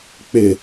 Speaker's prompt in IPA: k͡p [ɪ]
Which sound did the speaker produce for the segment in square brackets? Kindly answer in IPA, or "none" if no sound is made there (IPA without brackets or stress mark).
ɪ